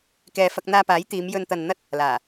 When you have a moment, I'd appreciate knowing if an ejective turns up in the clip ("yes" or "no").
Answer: no